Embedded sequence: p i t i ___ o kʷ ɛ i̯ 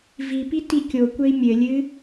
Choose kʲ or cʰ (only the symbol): kʲ